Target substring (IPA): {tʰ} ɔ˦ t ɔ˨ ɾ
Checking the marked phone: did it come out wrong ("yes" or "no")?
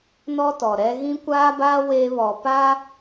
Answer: yes